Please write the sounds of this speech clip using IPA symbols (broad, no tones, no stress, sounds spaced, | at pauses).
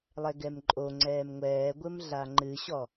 lˠ ɛ ɡ ɛ m ǃʼ o ŋ͡ǀ ɛː m ŋʷ ɛː ɡʷ ɘ m ɮ a ŋ͡ǃ ɨ ɕ ɔ